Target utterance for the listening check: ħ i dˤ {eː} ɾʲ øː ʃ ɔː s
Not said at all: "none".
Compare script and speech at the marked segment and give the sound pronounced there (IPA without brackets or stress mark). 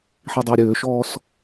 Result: iː